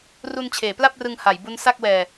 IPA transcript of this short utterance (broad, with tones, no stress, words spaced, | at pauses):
ru˧nt͡ɕʰeː˩˦pla˥˩p̚rɯ˧ŋ ha˩˦jbu˦˥n sa˥˩k̚wɛː˧